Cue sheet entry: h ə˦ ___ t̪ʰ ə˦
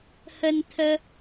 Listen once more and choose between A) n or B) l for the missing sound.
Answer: A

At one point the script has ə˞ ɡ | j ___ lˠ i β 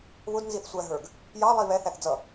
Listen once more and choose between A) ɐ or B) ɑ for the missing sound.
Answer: B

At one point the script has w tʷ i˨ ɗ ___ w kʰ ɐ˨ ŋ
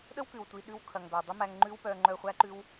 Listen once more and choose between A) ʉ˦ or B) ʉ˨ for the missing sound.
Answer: A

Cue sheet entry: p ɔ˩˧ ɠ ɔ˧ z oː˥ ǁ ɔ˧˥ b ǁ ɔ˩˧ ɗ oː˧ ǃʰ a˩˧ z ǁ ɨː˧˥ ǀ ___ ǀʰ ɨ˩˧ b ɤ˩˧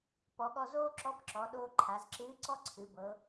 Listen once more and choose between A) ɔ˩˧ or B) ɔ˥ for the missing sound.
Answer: B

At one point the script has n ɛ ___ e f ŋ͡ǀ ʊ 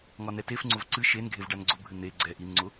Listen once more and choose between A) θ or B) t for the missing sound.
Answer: B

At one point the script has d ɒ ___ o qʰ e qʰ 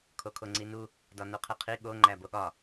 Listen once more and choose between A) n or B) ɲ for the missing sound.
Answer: A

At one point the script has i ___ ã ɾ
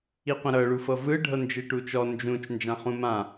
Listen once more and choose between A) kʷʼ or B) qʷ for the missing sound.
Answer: B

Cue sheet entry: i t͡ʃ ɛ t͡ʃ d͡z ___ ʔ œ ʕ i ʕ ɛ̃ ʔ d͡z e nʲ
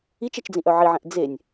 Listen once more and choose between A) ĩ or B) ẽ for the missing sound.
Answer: A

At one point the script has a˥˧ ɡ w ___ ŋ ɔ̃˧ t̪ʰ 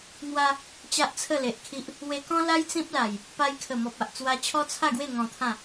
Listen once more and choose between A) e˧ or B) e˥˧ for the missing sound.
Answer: B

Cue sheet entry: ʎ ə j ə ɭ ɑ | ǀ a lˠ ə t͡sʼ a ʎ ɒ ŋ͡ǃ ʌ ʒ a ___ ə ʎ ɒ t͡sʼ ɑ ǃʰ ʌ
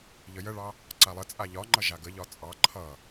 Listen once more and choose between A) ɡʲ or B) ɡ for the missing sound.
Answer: B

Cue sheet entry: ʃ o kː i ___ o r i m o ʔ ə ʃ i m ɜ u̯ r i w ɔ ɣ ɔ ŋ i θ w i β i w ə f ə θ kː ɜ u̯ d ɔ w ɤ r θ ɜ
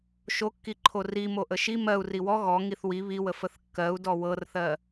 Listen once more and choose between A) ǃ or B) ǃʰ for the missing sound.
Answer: B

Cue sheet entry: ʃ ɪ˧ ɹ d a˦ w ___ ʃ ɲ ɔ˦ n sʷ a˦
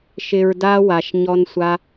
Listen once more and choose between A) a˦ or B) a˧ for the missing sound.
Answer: B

